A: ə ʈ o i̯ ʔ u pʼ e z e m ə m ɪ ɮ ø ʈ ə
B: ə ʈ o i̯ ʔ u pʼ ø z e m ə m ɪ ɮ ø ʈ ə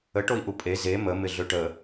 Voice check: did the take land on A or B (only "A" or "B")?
A